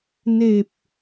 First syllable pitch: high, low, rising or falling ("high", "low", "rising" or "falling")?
low